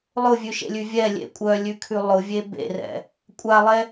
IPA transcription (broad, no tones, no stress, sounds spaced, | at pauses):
lˠ ʊ vʲ ʉ ʃ ḛ lʲ ʉ vʲ ɛ lʲ ḛ kʷʼ œ lʲ ʉ kʰ ʉ lˠ ʊ vʲ e b ḛ r ɛ̰ | kʷʼ a lˠ ɛ